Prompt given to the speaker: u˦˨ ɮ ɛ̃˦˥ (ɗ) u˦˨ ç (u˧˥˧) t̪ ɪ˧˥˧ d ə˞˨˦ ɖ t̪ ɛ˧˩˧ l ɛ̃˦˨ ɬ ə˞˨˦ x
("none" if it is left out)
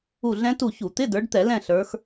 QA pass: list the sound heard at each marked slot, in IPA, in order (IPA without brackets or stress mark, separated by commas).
t, u˧˩˧